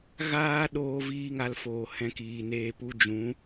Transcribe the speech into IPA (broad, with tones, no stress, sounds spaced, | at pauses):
ɣ aː˦ ɗ oː˦ v iː˦ ŋ a˧ l f oː˨ h ɛ̃˧ k iː˨ n eː˧ p u˦ d͡ʒ ũ˨˦